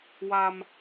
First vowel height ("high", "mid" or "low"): low